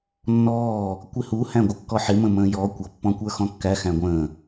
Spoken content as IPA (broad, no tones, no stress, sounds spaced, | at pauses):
nː ɔː | kʷ ɪ h u h æ̃ ɡʷ ə kː ɔ ħ ɪ m ə̃ m ə̃ː j ɔ kʷ ʌ pː ɔ̃ kʷ ə˞ x ɔ̃ kː æ x æ̃ ɡʷ ə̃ː